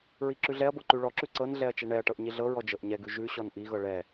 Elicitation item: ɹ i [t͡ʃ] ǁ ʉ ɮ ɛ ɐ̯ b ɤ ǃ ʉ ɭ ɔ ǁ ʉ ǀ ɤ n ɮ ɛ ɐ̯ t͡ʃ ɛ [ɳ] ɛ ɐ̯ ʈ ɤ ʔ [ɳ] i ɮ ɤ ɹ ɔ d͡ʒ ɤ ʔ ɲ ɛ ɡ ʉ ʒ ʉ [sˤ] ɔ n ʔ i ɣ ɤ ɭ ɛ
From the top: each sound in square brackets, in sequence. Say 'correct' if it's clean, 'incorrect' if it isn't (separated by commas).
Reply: incorrect, correct, incorrect, incorrect